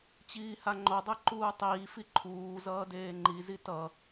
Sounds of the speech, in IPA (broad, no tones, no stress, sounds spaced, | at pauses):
t͡ɕ iː h a ŋ͡ǃ o dˤ e ǃ uː tˤ iː f i ǃʰ uː z ʌː d eː ŋ͡ǃ i z i t ʌ